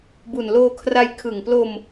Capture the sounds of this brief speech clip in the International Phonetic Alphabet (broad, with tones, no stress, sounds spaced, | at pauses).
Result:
b u˨˩ n l oː˧ kʰ r a˧ j kʰ ɯ˨˩ ŋ p l o˧ m